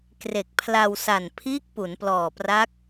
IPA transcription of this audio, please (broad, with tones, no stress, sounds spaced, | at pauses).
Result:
k r e˨˩ k̚ pʰ l a˧ w s a˨˩ n pʰ iː˦˥ k̚ p u˩˦ n p l ɔː˨˩ p r a˦˥ k̚